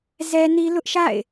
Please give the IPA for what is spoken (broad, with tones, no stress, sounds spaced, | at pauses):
z ɛ˦ n i˦ l ʊ˦ ʔ ʃ a̰˦˨ ɪ̯